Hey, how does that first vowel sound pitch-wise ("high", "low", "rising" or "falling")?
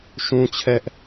high